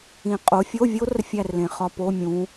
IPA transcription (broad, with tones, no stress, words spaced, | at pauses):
ĩ˨˩qʼo˨˦fʲo˧˥˧vʲo˦˥r fʲæ˥˧rlẽ˨˩˦χɒ˧˥˧ po˧˥˧mʲũ˨˦